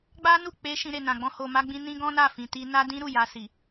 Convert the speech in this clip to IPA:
ɡ͡b a˦ n u˦˨ k͡p e˧ ʃ ĩ˧ ɾ e˨ n ã˨ ɡ͡b ɔ̃˧ h o˨ m a˧ ɡ͡b ĩ˧ n ĩ˦ ɡ ɔ̃˦ n a˦˨ f ĩ˨ t i˧ n a˦ d ĩ˦ ɾ u˦˨ j a˧ s i˨

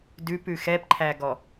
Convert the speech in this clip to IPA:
d ʉ p ʉ x ɛ p ǃʰ æ ɡ ɔ

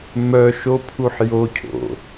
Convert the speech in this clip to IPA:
m œ ʃ o pʰ u ħ j o cʰ o̰

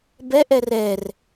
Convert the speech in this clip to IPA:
b ɛ ʔ ɛ r ɛ r

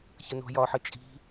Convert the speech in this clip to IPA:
ç ə n ɔ̤ j ɒ ħ ə t͡ʃʼ i̤

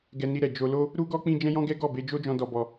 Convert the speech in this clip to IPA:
ɡ ɛ˧ n i˧ ɾ ɛ˨ d͡ʒ o˧ l o˦ | ɾ u˦ ɡ ɔ˦ k͡p ĩ˧ d͡ʒ ɛ̃˦ j ɔ̃˦ ɡ ɛ˦ ɡ ɔ˦˨ b e˧ d͡ʒ o˦ d͡ʒ ɔ̃˧ d ɔ˧ b ɔ˧

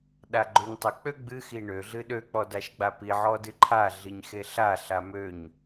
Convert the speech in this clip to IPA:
ɗ a ɡ͡ǃ ø ɲ tˤ ə k͡p ø ɡ͡b ɨ x i ɳ ø ɮ ɨ ɗ ø k͡p ɔ d a ʃ ɡ͡b a p i ʕ ɔ d ɨ ǃʰ a ɮ i ɲ x e ɬ a ɬ a m ø ɲ

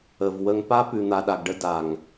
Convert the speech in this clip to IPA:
ə˨ v w ə˨ ŋ p a˧ p ʉ˨ n̪ a˨ ɗ a˨ ɡ ɖ ə˧ d a˨ ŋ

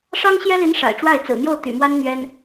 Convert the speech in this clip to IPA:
ʂ ɑ˥ ŋ ɕ j ɛ˥ l i˧˥ n ʂ a̰˨˩ ɪ̯ ʈ͡ʂ w a˥˩ ɪ̯ t͡s ɹ̩˨˩ n̪ j o˥˩ ʊ̯ t̪ y̰˨˩ m w a˥ n n̪ ɥ ɛ˥ n

